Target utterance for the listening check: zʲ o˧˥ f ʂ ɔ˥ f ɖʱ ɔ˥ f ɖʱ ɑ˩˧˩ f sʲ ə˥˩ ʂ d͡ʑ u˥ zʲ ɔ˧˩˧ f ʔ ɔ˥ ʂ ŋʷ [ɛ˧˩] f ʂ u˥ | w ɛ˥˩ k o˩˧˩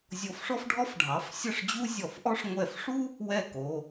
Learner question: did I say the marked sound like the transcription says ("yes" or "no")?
yes